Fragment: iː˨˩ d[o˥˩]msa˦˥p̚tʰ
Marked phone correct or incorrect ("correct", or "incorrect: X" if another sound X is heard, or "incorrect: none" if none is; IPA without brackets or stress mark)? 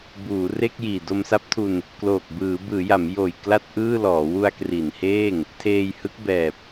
incorrect: o˧